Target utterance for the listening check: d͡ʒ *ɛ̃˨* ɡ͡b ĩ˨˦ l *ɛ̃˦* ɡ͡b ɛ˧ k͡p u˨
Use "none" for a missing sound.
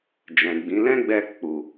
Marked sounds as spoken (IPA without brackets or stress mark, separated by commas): ɛ̃˨, ɛ̃˦